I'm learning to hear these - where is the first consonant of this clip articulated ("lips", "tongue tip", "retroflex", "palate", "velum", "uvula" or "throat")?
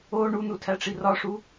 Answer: retroflex